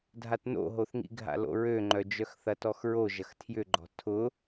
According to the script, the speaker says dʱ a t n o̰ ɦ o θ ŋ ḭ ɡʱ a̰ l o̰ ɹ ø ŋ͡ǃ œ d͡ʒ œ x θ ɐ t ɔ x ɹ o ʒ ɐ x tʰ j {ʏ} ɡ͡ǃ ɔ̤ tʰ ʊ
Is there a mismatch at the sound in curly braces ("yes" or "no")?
no